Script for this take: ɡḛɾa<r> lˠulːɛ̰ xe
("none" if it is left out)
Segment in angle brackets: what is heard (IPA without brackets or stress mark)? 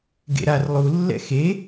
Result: r